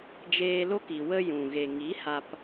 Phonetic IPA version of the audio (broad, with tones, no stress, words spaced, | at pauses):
d͡ʒeː˧lo˦ki˨ wə˧jũ˨ɣe˨ ŋi˨˦ha˧p